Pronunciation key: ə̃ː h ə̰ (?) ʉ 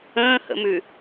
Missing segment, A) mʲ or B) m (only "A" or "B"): B